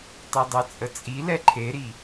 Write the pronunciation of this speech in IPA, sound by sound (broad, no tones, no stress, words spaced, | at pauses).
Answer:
tˤedˤɛt͡sʼət͡sʼi lɛǃʰeɾi